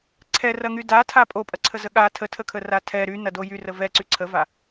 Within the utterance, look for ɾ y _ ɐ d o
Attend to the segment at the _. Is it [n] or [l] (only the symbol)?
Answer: n